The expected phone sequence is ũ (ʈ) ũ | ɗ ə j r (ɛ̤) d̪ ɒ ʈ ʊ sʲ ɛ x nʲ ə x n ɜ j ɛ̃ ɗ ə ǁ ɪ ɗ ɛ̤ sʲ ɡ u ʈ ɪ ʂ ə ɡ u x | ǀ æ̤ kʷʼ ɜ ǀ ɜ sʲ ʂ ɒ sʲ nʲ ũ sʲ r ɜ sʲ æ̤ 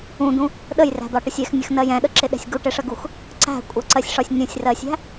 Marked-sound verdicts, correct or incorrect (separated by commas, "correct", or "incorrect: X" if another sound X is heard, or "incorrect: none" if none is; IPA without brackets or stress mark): incorrect: d̪, incorrect: æ̤